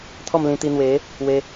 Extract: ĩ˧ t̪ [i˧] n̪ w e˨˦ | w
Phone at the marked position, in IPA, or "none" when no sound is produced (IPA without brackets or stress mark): i˧